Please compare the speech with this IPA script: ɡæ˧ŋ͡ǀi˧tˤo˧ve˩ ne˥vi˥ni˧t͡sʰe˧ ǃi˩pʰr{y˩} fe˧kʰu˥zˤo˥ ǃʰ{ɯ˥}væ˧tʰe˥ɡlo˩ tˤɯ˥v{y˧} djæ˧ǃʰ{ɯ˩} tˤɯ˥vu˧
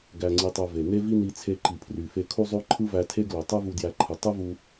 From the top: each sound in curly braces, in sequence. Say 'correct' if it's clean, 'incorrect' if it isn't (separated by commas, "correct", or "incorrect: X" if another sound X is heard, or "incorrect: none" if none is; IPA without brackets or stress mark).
correct, correct, incorrect: u˧, correct